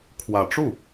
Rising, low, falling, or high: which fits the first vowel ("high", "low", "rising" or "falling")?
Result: low